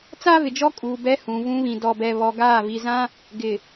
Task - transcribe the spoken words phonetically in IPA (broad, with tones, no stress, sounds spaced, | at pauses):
t͡s aː˦ v ɪ˨ d͡ʒ ɔ˦ kʼ uː˨ b ɛ˦ h ũ˨ v ũ˦ β ĩ˨ d ɔ˨ b ɛ˨ β ɔ˨ ɡ aː˦˨ v i˨ z ã˦ | ɡ ɪ˨